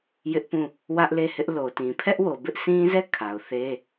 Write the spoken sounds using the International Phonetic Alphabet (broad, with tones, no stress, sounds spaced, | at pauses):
j ɪ˦ ʔ p ũ˦˨ | w ä˦ ʔ l e˦˨ h ɪ˦ ʔ l o˨ t ĩ˨ pʰ ɛ˦ ʔ w o˨ b ɪ˦ ʔ s ĩ˦ z ɛ˦˨ kʰ a˨ ʊ̯ θ e˦